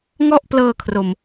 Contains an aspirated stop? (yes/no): yes